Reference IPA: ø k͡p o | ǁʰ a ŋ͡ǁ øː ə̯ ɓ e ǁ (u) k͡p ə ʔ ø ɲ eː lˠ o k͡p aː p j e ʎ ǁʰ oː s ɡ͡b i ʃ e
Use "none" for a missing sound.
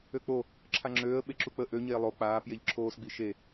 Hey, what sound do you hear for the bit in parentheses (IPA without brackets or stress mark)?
u